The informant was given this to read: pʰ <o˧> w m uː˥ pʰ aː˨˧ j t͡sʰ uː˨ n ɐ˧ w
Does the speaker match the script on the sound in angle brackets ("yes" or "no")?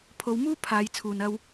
yes